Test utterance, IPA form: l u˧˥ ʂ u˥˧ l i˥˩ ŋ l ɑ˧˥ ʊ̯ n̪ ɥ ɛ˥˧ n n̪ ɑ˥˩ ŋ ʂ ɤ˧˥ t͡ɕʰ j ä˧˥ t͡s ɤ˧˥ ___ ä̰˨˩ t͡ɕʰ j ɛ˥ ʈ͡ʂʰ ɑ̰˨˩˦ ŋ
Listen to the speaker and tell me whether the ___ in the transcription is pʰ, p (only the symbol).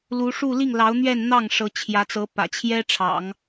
p